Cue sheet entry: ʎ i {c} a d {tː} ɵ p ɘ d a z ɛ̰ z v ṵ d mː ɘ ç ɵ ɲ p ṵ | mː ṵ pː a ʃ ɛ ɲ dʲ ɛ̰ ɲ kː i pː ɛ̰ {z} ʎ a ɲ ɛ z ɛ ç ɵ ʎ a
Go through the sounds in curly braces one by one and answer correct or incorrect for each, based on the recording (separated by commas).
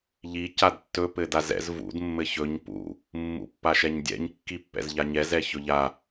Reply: correct, correct, correct